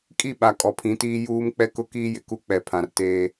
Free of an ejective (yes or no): no